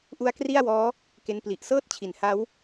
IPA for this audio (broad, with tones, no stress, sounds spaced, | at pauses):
ʔ u˦˥ a̯ k r i˥˩ a̯ w ɔː˦˥ | k e˧ n p l i˨˩ ʔ s ɤː˥˩ t̚ t͡ɕʰ i˩˦ n h a˦˥ w